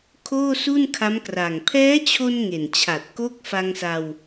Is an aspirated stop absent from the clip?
no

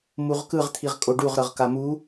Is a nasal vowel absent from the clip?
yes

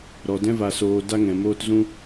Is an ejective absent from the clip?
yes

